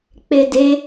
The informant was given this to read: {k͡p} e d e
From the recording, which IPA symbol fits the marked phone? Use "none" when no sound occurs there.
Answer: k͡p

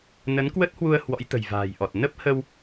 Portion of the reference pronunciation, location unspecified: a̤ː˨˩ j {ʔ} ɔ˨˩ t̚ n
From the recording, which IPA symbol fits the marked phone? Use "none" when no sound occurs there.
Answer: ʔ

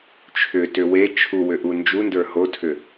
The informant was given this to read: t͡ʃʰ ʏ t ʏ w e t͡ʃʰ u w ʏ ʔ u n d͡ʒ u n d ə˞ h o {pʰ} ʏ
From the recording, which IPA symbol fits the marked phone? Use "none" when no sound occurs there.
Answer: tʰ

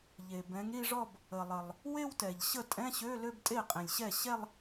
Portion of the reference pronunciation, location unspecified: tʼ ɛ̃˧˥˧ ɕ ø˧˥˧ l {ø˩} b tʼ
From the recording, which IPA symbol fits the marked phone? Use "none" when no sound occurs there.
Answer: ø˥˧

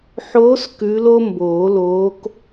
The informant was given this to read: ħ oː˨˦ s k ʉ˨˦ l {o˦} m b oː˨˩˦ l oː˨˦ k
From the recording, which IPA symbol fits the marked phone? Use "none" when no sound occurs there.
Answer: o˦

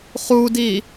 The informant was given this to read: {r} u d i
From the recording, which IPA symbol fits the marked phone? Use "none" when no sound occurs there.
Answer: χ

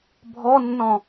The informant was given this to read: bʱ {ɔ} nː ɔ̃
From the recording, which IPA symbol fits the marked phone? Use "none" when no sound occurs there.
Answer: ɔ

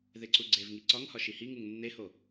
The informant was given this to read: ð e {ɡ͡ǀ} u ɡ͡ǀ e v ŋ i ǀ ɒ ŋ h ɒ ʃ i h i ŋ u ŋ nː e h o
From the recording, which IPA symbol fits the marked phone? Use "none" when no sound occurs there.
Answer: ǀ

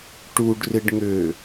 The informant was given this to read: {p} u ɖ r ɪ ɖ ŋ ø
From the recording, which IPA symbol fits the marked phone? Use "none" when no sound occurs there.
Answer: ʈ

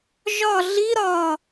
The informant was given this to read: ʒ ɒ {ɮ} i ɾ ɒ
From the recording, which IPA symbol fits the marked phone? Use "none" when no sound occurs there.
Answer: ɮ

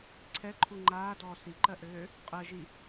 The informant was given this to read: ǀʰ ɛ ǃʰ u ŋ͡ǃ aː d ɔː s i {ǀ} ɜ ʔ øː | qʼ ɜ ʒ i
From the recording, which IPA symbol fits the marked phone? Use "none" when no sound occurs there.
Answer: ǃ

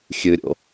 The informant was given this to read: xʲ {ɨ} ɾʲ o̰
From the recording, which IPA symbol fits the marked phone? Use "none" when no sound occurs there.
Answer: ɨ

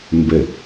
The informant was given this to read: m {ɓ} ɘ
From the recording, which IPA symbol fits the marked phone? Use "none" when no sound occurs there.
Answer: b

